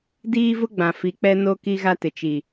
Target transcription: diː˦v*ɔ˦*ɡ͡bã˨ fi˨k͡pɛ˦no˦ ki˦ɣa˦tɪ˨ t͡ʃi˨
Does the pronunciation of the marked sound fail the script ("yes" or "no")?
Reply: yes